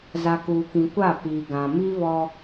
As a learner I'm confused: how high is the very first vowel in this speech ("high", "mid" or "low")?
low